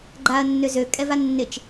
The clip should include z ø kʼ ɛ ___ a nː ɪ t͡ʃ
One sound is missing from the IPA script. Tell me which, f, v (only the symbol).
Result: v